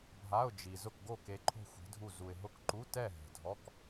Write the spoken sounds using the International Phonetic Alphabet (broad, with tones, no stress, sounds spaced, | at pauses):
bʱ a˧˥˧ ʊ̯ d͡ʒ i˨ z ʊ˥˨ k ɡ o˥˨ k e˧˥ ǃʰ o̤˥˨ xʷ i̤˧˥ dʱ u˥˨ z u˨ ɪ̯ ɦ ʊ˧˥˧ k ǃ u˧˥˧ t ɛ˥˨ ɦ ɛ̤˨ dʱ ɔ˧˥˧ k